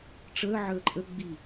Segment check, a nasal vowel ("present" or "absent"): absent